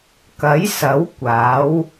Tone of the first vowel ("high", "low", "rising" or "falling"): rising